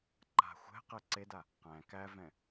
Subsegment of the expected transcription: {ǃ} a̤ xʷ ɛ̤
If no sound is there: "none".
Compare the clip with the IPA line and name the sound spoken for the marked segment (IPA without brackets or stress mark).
ǃ